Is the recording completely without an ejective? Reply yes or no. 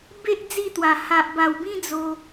yes